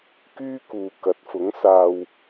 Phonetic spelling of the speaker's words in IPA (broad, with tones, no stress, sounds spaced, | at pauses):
k yː˥ k uː˨ k ɐ˨˥ t̚ f ʊ˨˥ ŋ s aː˧ w